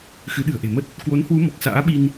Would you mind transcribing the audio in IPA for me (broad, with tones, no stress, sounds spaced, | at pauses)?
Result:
x ɨ˨˦ ɗ ɨ̤˨˩ ə̯ ʔ e̤˨˩ m ə˦˥ t̚ | k w o˨˦ n h w u˨˦ m ɔ˨˩ k̚ s a̰ː˧˥ ɓ i˧ n